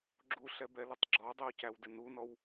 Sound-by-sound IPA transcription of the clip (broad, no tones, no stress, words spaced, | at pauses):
ɡ͡ǁuɬɛbɛlʊtˤ ɡ͡ǁɔdˤiwcæwdɪ nunɔw